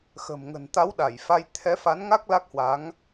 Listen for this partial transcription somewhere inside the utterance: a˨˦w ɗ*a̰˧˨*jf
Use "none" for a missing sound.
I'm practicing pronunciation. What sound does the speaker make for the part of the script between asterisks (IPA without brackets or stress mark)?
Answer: a˧˩